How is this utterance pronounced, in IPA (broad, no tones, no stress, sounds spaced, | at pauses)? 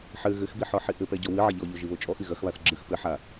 ħ ɘ ɣ ɘ x b i ħ ɔ ħ i ʔ ɘ p ɛ ɟ ɔ w ɨ ʕ ɐ ʎ ɔ ʎ o ʒ i β o t͡ʃʼ ɔ ʔ i ɣ ɐ x β a θ ɡ͡ǁ ɨ x p ɘ ħ a